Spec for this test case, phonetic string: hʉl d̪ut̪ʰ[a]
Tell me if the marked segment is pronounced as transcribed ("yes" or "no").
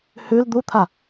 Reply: yes